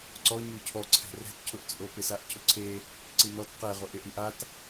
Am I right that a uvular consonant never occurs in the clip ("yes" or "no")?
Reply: no